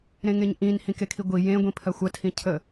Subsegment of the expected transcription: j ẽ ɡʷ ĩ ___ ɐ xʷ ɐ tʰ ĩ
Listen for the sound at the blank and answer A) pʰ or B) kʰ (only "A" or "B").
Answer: A